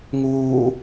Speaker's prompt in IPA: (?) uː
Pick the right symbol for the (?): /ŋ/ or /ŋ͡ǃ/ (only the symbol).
ŋ